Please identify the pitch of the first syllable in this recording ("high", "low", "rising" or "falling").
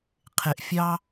low